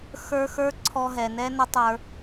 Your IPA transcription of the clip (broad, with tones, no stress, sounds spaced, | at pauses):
x ə˞˧ x ə˞˦ ǀʰ ɔ˧ ɦ ɛ˨ n ɛ˦ n ə˦ tˤ ə˞˧